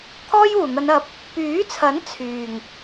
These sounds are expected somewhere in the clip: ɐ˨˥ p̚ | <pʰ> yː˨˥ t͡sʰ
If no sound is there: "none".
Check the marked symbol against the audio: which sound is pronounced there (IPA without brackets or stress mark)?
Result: p